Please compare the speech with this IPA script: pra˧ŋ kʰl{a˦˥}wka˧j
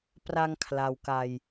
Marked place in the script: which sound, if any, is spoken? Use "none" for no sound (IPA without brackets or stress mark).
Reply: a˧